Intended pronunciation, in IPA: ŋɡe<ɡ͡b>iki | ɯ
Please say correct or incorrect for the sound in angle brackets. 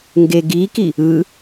incorrect